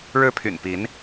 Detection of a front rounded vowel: present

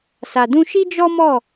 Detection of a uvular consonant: absent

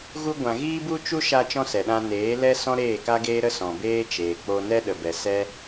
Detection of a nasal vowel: present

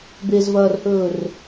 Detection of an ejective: absent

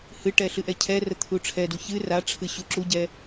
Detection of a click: present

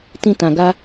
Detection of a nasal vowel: present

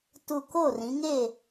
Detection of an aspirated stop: absent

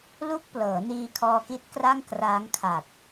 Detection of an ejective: absent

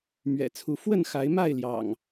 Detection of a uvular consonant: absent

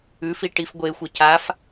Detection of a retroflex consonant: present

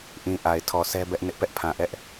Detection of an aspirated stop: present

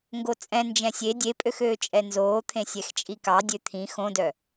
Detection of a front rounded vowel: present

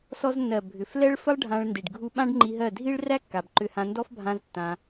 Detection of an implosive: present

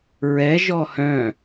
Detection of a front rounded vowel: present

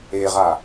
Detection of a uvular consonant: present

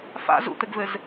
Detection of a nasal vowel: absent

